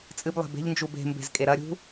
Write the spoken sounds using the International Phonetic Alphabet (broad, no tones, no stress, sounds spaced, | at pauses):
t͡sʼ ɨ b lˠ e̤ b e̤ ʎ n d͡ʒ u b e̤ m b e̤ z kʼ e ɾ ɐ ɾʲ ṳ